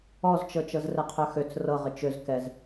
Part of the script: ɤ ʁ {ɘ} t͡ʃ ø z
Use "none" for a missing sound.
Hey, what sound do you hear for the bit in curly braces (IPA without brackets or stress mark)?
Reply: ɘ